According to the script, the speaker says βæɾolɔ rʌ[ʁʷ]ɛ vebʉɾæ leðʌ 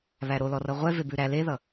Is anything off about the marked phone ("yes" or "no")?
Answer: no